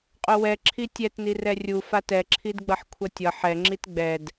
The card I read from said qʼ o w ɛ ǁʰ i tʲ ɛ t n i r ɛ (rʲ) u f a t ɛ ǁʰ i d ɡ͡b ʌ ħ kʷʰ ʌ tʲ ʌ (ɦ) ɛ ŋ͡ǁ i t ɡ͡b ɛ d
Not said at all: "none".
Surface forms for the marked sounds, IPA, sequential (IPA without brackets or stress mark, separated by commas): rʲ, ħ